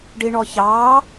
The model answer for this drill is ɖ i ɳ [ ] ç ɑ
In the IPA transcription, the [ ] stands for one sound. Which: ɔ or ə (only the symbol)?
ɔ